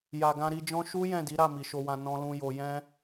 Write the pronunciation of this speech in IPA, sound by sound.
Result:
ja˨ɡã˧ɾi˧d͡ʒɔ̃˦ ʃu˦ jɛ̃˦˨di˨˦ɾa˦˨ mi˨ʃo˧wã˧ nɔ̃˧lũ˧jo˧ jɛ̃˦

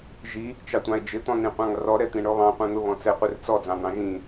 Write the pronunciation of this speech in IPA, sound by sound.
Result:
ʒi | t͡ʃɑtʷɑ̃e̯d͡ʒɪ t̪ɔ̃nĩqʷɑ̃ŋrɔ ɾɛt̪ĩɳɔβɑ̃ qʷɛ̃n̪ʊβɔ̃t͡sɛ qʷɪrt͡sɔ d͡zɑ̃n̪ɑ̃ʒĩ

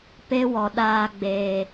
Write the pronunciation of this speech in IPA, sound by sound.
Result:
pe˦wɔ˨ ɗaː˧ɡ͡beː˨

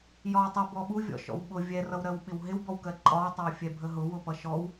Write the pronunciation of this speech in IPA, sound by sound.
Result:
jɒwtˤɪ bɔɓuvʲɔ̰ʃɔ̰w ɓʊ vʲɛrʌwɾɜw ɓɪwɦɪwbɔwkɜ ǃʼɒwtˤʌwfʲɛ bʱəɦʊ wʊpʌʃɔw

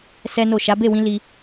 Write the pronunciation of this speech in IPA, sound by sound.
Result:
sɛ˦no˦˨ ʃa˨˦be˦˨wĩ˧li˧

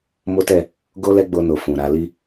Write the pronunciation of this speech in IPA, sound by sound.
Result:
mo˦tɛ˦˨ | ɡo˦lɛ˦ɡ͡bo˧no˨ fũ˨ɾa˧li˦

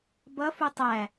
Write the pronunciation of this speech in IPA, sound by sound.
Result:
bʌfu tˤæ

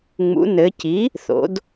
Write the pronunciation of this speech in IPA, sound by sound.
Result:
ŋ͡mṵ˩˧nɘ˩˧ci˩˥ | θo̰˩˧d

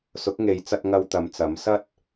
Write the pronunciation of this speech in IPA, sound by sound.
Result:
sʊ˨˥k̚ŋe˨˧jt͡sɐ˧t̚ ŋɐ˧wt̪ɐ˨˧mt͡sɐ˨˥m sɐ˥t̚

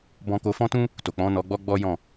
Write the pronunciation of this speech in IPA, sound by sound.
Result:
bɔ̃˧ko˧fɔ̃˦tũ˦ | to˨k͡pɔ̃˨˦nɔ˧ɡ͡bɔ˦ ɡ͡bɔ˦jɔ̃˦˨

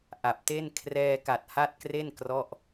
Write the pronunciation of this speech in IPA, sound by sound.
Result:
ʔa˨˩p̚te˥˩n kʰrɛː˧ka˨˩t̚ha˦˥t̚kre˥˩n krɔ˥˩ʔ

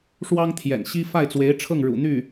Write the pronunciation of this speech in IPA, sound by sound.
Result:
ʂwɑ˥ŋt̪ʰjɛ̰˨˩nɕi˥ fa˥˩ɪ̯t͡swe˧˥ɪ̯ʈ͡ʂʰɤ˥˩ŋ ɻṵ˨˩ n̪y˥˩

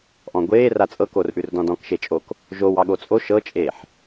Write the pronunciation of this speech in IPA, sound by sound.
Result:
ʔɔ̃ɡʷeː rat͡sʼɤkorʔʉr dɔ̃dɔ̃kʃet͡ʃʼok | ʒow ɑɠot͡sʼo ʃɤt͡ʃʼeːħ

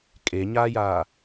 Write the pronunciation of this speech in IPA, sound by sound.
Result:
kʼeɲaːjaː

